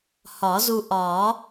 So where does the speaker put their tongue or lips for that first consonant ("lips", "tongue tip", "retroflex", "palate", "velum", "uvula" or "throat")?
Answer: throat